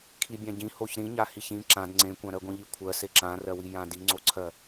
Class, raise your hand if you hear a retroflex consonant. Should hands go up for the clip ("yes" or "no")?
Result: no